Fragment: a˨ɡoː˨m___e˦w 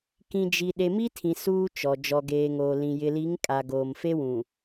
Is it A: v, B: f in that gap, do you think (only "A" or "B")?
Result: B